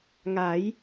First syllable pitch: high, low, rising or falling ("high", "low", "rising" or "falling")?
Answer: rising